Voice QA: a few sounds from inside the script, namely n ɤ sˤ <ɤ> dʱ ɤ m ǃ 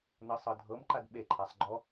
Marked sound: correct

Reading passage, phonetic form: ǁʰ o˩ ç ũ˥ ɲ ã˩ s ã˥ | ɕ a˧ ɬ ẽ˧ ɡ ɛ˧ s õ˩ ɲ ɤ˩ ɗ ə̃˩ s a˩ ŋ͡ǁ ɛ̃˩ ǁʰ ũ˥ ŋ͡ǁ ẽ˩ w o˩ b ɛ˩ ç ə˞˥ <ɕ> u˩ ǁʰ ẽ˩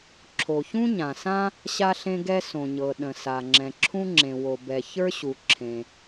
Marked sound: correct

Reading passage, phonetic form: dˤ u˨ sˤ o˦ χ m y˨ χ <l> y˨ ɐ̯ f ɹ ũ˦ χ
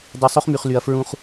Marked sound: correct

